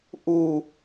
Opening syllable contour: low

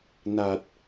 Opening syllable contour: low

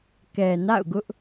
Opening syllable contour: low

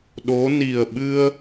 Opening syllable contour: rising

